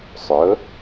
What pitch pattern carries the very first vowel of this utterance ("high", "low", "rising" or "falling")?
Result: rising